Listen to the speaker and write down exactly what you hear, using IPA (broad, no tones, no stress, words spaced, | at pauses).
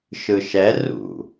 ʃɯʃɛ rṵ